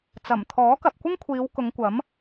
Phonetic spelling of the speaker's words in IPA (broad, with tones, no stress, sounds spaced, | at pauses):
t͡s ɐ˨˩ m t̪ʰ ɔː˨˥ k ɐ˨ p̚ kʷ ɪ˥ ŋ kʷʰ iː˨˧ w k ʊ˨˧ ŋ kʷ ɐ˨˥ m